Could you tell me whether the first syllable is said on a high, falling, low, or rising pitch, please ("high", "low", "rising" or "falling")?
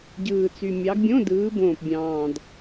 low